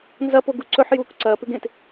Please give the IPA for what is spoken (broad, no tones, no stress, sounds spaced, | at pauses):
n z ɐ p o ɡ u ǀ ɵ ħ j uː k ǀ ɐː p ʉ ɡ ẽ t